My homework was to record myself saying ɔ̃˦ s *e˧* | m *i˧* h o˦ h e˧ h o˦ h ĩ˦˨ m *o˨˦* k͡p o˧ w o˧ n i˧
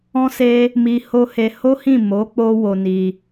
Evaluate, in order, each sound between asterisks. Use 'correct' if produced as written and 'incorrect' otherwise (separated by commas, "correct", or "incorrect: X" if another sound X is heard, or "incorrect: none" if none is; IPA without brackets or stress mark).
incorrect: e˦, correct, correct